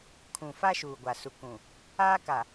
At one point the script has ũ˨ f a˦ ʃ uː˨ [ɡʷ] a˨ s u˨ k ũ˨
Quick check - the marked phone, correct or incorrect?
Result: correct